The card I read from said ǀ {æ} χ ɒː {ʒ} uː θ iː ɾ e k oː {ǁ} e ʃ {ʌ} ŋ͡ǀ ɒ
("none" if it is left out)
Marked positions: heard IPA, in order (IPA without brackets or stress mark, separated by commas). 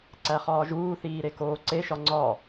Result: æ, ʒ, ǀ, ɒ